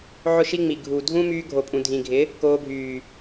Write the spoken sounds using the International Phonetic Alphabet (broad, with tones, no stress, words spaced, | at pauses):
ʕʊ˦ʃi˦ŋ͡mi˨ ɡʱu˨dʱũ˦myː˧ ɡʱo˨pʼũ˨dʱĩ˨ɡʱɪ˨˦ | koː˧bʱyː˨